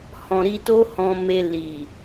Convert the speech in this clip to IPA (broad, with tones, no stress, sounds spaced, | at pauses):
h ɔ̃˨ ɾ i˧ t o˦ h ɔ̃˧ m e˧ l i˨